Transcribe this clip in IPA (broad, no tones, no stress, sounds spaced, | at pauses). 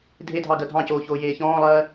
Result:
dʱ e dʱ ɑ ɡ ɜ ɡʱ ɑ̃ c oː ç oː j eː ç ɔ̃ː lˠ ɜː